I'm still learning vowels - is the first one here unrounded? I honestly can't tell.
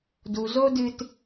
no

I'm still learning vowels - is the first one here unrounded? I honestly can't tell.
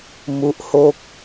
no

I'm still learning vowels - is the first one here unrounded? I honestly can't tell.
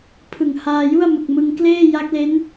yes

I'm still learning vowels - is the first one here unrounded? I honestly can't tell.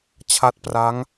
yes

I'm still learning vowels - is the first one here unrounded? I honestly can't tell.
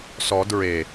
no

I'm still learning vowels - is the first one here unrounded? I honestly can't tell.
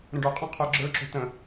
yes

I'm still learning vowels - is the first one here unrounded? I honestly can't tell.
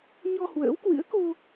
no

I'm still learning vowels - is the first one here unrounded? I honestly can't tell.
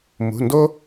no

